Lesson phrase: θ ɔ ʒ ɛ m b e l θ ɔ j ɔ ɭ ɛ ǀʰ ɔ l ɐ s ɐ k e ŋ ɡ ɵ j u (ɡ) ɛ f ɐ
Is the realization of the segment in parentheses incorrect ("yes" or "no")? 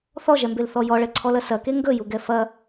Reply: no